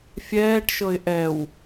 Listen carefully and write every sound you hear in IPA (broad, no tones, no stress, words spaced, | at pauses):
fʲɛːʈʃɤɪ̯ ʔɛw